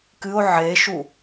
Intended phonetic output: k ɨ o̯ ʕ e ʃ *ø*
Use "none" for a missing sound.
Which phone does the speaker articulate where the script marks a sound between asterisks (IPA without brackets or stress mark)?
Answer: u